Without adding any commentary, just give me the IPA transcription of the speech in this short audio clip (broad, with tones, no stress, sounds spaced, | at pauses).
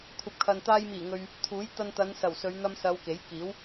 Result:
kʷʰ ɐ˨ p̚ kʰ ɐ˨ n t̪ aː˧ j m iː˨˩ ŋ ɵ˨ ɥ | t̪ʰ uː˨˥ j t̪ ɐ˧ n t̪ ɐ˨˧ n s ɐ˨˩ w s ɵ˨˧ ɥ n̪ ɐ˧ m s ɐ˨˧ w k e˨˥ j k iː˨˥ w